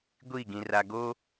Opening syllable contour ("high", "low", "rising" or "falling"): falling